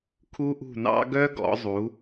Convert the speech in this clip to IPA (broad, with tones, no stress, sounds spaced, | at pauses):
kʰ u˥ ʔ ṳ˥˧ n ɑ̰˥ ɡ œ˥ ɡ ɔ̰˩˧ zˤ u˩˧